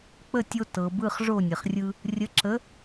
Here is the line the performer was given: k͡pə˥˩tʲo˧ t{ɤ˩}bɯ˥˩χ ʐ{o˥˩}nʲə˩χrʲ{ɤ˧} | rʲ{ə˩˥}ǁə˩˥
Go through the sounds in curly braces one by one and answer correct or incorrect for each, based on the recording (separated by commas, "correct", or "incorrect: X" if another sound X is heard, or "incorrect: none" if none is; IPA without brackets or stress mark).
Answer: correct, correct, incorrect: ɯ˧, correct